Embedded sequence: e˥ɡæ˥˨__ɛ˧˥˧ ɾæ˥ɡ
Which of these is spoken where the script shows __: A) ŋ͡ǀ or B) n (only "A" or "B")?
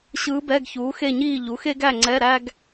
A